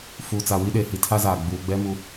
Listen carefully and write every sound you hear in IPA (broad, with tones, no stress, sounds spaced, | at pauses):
f uː˨ t͡s a˨ w i˦ ɗ e˨ h i˨ tʰ a˦ z aː˨ ɡ͡b uː˨ ɡ͡b ɛ˦ m u˨